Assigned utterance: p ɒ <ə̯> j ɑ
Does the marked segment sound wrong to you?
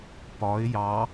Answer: yes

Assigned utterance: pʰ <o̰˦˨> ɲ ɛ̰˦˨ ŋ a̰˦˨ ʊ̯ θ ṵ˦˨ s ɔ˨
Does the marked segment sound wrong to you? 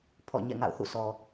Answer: yes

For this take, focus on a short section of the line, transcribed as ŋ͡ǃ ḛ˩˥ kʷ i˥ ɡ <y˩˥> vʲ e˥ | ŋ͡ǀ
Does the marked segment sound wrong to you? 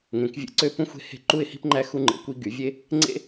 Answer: no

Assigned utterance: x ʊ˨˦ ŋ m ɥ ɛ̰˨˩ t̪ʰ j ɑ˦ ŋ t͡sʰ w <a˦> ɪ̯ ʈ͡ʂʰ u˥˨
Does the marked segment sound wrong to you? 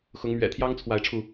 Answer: yes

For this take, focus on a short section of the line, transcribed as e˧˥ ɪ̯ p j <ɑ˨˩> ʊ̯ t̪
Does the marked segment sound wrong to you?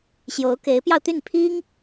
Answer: yes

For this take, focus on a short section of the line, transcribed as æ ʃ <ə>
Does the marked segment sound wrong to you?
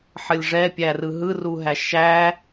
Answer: yes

